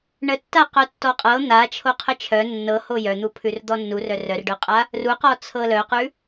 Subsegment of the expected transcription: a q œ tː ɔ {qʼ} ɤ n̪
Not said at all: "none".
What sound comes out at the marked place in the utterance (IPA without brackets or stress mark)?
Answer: qʼ